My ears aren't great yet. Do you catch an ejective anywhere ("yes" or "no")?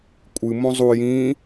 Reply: yes